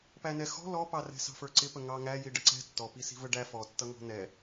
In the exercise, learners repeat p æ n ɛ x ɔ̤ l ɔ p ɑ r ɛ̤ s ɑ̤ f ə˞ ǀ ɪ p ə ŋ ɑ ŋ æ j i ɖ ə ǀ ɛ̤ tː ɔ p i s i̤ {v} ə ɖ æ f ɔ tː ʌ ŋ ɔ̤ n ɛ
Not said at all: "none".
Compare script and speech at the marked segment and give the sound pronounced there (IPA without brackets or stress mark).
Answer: v